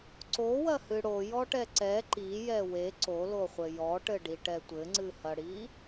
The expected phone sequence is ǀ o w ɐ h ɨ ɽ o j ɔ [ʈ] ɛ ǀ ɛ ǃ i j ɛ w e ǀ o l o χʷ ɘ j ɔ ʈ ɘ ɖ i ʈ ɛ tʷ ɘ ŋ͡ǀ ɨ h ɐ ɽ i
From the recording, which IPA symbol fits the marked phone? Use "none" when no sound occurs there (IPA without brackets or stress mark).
ʈ